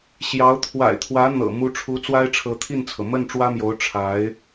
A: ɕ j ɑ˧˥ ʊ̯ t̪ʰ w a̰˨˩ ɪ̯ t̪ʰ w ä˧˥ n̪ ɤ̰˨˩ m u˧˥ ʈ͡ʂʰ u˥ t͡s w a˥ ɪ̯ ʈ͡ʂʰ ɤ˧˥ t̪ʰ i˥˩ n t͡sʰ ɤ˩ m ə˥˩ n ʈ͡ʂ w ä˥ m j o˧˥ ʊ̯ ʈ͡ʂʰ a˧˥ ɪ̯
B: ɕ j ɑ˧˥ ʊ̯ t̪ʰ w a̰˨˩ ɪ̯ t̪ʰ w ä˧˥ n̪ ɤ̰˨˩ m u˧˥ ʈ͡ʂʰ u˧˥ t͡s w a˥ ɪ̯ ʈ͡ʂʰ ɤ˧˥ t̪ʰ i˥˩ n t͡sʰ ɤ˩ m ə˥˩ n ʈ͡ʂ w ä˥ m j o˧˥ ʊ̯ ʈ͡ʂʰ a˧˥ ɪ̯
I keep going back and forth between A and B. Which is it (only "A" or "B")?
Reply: B